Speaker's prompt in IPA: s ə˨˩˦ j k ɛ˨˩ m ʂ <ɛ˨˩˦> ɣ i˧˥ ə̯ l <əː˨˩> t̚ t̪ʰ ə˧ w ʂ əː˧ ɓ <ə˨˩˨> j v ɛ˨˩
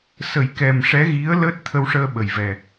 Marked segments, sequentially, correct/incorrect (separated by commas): incorrect, incorrect, incorrect